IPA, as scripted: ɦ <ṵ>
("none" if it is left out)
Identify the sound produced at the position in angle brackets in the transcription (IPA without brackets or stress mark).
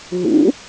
ṵ